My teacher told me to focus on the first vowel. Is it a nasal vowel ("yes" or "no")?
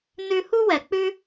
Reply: no